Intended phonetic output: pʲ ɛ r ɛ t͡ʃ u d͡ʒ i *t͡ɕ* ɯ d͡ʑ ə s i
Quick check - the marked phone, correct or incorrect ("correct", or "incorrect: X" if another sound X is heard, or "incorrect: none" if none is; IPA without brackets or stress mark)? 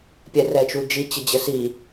correct